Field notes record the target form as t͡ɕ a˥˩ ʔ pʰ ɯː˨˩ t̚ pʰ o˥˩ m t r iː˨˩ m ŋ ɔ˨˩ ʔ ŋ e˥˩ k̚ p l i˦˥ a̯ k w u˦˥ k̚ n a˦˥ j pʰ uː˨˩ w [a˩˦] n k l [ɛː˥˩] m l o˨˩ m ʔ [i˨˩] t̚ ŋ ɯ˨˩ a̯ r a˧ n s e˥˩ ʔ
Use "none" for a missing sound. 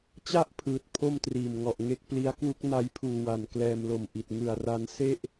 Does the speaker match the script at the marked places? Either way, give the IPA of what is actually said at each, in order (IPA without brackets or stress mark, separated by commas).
a˩˦, ɛː˧, i˨˩